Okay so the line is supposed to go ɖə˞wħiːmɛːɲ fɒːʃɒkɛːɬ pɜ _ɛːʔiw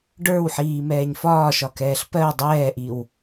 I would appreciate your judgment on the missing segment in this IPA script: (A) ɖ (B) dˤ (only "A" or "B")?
B